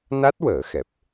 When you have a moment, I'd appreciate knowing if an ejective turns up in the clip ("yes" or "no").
no